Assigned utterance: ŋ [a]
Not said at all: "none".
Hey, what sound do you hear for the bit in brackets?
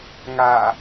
a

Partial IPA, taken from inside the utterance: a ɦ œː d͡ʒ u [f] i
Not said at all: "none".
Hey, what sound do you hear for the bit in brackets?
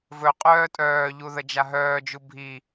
bʱ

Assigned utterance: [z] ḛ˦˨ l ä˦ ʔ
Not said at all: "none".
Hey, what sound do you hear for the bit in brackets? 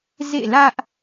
z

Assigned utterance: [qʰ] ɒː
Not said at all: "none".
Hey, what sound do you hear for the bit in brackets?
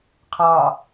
qʰ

